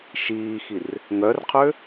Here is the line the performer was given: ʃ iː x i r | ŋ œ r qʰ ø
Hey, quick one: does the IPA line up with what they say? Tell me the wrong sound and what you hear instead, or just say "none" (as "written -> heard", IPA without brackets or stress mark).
none